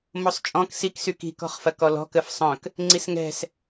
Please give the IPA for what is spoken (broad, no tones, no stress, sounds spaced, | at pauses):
m o sˤ t͡ʃʼ ɔ̃ k s i k s y k i̤ k ɔ̤ χ f ɐ k ɔ l ɔ̤ k ə f sˤ œ̃ k | ŋ͡ǀ i s ŋ ɛ̤ s